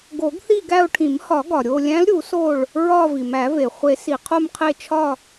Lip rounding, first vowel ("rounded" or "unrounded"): rounded